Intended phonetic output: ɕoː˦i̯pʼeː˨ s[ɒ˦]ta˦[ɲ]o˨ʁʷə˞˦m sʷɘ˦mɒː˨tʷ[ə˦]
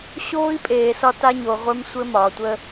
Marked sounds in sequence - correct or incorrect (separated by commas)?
correct, correct, correct